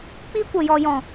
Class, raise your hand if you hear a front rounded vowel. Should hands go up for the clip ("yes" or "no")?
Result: no